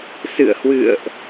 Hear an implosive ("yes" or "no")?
no